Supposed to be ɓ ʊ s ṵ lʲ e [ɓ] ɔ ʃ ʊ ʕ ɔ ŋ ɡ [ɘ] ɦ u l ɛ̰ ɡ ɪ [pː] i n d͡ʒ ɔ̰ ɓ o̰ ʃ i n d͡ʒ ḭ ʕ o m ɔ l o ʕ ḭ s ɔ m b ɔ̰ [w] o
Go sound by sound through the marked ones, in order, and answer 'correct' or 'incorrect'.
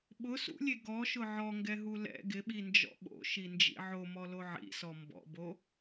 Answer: incorrect: ɡ, incorrect: ɛ, incorrect: ɓ, incorrect: b

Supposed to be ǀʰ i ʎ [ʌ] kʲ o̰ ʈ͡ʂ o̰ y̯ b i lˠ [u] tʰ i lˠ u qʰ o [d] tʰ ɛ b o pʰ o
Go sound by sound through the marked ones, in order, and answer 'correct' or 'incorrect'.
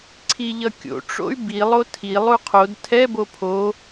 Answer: correct, incorrect: o, correct

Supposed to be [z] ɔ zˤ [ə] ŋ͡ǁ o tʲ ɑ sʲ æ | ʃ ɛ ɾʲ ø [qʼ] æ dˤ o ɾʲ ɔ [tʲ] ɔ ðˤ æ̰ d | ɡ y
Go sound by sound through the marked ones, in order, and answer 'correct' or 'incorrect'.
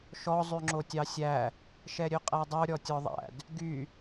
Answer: incorrect: ʃ, incorrect: ʉ, correct, correct

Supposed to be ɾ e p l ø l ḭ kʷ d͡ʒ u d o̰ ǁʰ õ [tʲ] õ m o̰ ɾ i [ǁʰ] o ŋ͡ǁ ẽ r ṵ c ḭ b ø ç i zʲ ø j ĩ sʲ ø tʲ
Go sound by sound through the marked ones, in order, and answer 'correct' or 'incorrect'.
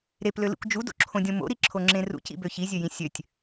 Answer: incorrect: dʲ, correct

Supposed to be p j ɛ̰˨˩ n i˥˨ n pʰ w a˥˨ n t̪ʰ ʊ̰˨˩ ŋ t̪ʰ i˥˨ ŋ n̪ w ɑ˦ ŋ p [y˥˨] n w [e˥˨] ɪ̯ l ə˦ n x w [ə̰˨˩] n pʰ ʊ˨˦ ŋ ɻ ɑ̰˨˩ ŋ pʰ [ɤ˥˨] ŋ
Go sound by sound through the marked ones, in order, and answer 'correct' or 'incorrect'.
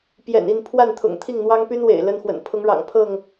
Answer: incorrect: y˦, incorrect: ḛ˨˩, correct, correct

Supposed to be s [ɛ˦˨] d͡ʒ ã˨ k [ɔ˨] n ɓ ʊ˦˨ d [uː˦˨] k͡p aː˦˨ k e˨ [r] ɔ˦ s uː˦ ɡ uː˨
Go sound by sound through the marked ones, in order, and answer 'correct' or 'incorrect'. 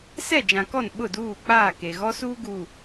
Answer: correct, incorrect: ɔ˦˨, correct, incorrect: ɣ

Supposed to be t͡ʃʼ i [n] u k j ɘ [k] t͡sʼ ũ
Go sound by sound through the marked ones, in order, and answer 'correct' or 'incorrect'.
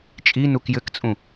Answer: correct, correct

